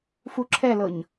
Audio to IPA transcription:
f u ǁʰ ɛ l ɤ ɲ

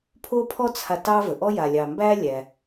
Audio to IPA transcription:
pʰ o˥ pʰ ɔ˥ t͡sʰ a˨ t ɑ˦ v ə˩ ʔ ɔ˥ j a˨ lʲ ɑ˨ m b æ˥ lʲ æ˩

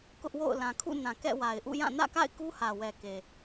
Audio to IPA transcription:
k ʊ˦ ʔ w o̰˦˨ ʊ̯ l ã˨ kʰ ṵ˦˨ n ã˨ k ɛ̰˦˨ w a˨ ɪ̯ ʔ ṵ˦˨ j ã˦˨ n ä̰˦˨ k a̰˦˨ ɪ̯ k u˦ h ä˨ w ɛ˨ k e˨

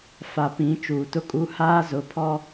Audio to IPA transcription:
f a˨ p ĩ˨˦ t͡ʃ uː˨ t ʊ˦ kʼ u˦ h aː˦ z ʊ˨˦ pʰ ɔ˦

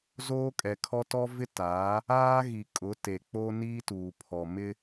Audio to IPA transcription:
z oː˦ kʼ ɛ˨ kʰ ɔ˦ t ɔ˦ v ɪ˦ t aː˨˦ | aː˦ ɣ i˨ kʼ ʊ˨˦ t e˨ k͡p o˦ n iː˦ t uː˨ pʰ ɔ˨ m ɪ˦

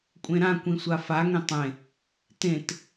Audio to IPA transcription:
kʷʼ ẽ ɾ ã kʷ ĩ sʷ a f a ŋ ẽ tˤ ẽ | t ẽ t

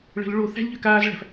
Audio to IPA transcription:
ɭ ə̤ l ɭ o θ æ̤ lʲ ʎ ø k aː z ɭ æ̤ f

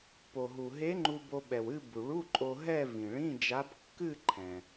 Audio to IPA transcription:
p o˩ ɦ u˩ ɦ e˧˥ ŋ͡ǃ u˧ b o˧ ɓ ɛ˩ w ɨ˥˧ b u˩ ɭ u˧˥˧ ǃʼ o˧ ɦ ɛ˥˧ v ĩ˩ ɭ ĩ˧˥˧ d͡ʒ a˧˥ b kː ɨ˥˧ ǃʰ ɛ̃˩

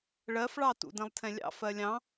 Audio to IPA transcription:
ɭ ɜ f ɭ ɑ t ṵ d ɛ̃ lˠ tʰ ɛ̃ lʲ ɑ̰ f ɜ lʲ ɑ̃

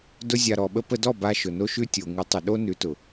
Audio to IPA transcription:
d ʊ˦ zʲ a˧ ɾ ɔ˨ ɓ ə˧ p ə˧ d ɔ˦˨ b a˧ ʃ ʊ˨ n o˦ ʃ ʉ˦ tʲ o˨ ŋ ʉ˨˦ tˤ ʊ˨ ɗ o˦ n ʉ˨˦ t ʊ˨

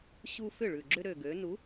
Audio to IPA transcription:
ɕ u˦ f ʏ˥˩ ɭ ʉ˨˩ ɡ͡ǁ ʏ˦ ɾ ø˨˩ ɡ ø˩˧ n u˨˥

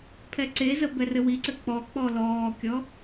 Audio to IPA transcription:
pʰ ɛ ǀ e z ə b ɛ r ɘ w i ǀ ɘ k͡p ɔ k͡p ɔ l ɔː kʲ ɔ

